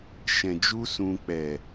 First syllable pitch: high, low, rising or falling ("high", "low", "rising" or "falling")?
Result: low